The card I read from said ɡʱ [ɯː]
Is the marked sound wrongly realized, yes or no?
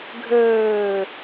yes